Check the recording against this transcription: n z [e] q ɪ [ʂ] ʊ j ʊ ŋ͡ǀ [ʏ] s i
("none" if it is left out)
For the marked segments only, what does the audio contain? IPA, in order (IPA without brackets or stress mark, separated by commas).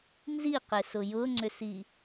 i, s, ʏ